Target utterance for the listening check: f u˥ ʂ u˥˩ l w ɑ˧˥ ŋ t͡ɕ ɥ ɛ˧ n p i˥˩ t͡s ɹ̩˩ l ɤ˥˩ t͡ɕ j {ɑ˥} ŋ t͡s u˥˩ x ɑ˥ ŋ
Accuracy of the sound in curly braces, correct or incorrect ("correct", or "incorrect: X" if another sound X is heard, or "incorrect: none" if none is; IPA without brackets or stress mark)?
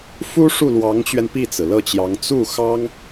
incorrect: ɑ˧˥